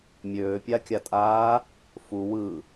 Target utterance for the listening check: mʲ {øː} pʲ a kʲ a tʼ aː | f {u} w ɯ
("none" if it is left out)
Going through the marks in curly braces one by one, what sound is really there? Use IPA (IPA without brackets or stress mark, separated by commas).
øː, u